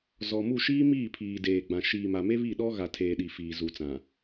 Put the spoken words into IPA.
zɔ˨mu˦˨ ʃiː˦ miː˦˨pʰiː˨deː˨ɡ͡bã˨ ʃiː˨ma˨ me˦βi˦˨ɗɔ˦ ɣa˨tʰeː˨ɗi˨ fiː˨zu˨t͡sã˨

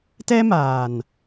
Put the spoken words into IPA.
tɛ˦maː˨n

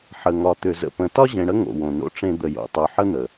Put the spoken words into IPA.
ħə˨ŋɒ˨t̪ʏ˨ zə̰˨pə̃˨ tɒ˦ʑẽ˨ɽə˦ ŋo̰˨wõ˨no̰˦ʈ͡ʂẽ˦ d̪ə˨jo̰˨ tˤo˨ħə˦n̪ə˨

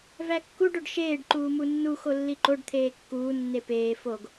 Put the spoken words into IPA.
vækːuɖ oɖʃeːɖ ǃuːmunːu xolːiǃoɖ t̪ʰeːkːuː nːepeː foɡ

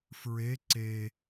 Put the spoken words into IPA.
fɹe ǀe

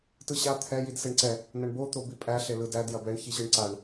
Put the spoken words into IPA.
tɯɕa t̪ʰɛ jidseɳǀɛ | nɐɳbot̪o bipʼæ ɬelɯdæd jɐbɛɳçiɕɯɳ ǀaɳ

